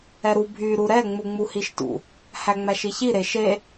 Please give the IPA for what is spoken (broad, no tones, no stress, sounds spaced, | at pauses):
ɛ ɾ u bʱ y ɾ u ɾ ɛ ŋ͡m u ŋ͡m u h i ʃ t ṵ | h æ ŋ͡m æ ʃ i ç i ɾ e ʃ e